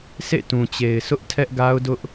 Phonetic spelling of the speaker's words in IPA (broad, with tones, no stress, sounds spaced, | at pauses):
sʰ ḛ˦˨ t ũ˨ t͡ɕ e˨ ɪ̯ sʰ ʊ˦ ʔ tʰ ɛ˦ ʔ ɡ a˦ ʊ̯ d ʊ˦ ʔ